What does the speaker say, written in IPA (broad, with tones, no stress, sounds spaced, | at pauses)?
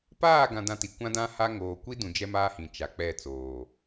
p aː˦˨ ɡ ã˨ d ã˦ t i˨ kʷ ã˦ d ã˦ h a˦ ŋ oː˨ kʷ i˦ d ũ˨ d͡ʒ ɛ˦ m aː˦ h ĩ˨ t͡ʃ a˨ k͡p ɛ˦˨ t͡s oː˨